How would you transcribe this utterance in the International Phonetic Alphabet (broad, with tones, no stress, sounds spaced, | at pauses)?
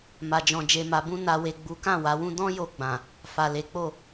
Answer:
m a˨ d͡ʒ ɔ̃˨ d͡ʒ e˨ m a˨ b ũ˧ n a˨ w e˨ ɡ͡b u˨˦ k ã˦˨ w a˨˦ w ũ˦ d ɔ̃˦ j o˧ ɡ͡b ã˨ | f a˨ l e˨˦ k͡p o˦˨